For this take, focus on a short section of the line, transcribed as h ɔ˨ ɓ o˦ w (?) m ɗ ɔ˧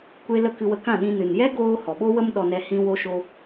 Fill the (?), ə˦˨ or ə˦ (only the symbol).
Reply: ə˦